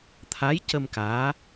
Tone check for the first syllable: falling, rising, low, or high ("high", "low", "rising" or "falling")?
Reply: rising